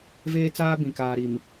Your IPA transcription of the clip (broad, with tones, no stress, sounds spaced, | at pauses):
v eː˦ t͡s aː˦ b ĩ˨ k aː˨ ɾ i˨ m